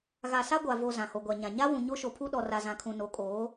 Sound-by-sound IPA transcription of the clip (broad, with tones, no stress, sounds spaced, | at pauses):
ɣ a˨ s a˦ ɡʷ a˨ v o˨ z ã˨ h o˨ ɡʷ a˨ ɲ ã˨ ɲ a˦ w ũ˨ ɲ o˦ ʃ o˨ pʰ u˦ ɗ ɔ˨ r a˨ z ã˨ kʰ ũ˨ n o˨˦ kʼ oː˨˦